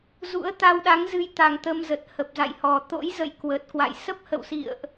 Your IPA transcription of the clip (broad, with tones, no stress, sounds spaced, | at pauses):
z ṵ˧˥ ə̯ t̪ a˧ w ɗ a˨˦ ŋ z ɨ˧ j t̪ a˨˩ ŋ t̪ ə˧ m z ə˨˩ t̚ h ə˨˩ p̚ z a̰˧˨ j h ɔ˨˩ t̪ o̰˧˥ j z ə̰˧˨ j k w ə˨˩ t̚ k w a̰˧˨ j s ə˦˥ p̚ h ə̰˧˨ w s ḭ˧˨ ə̯ ʔ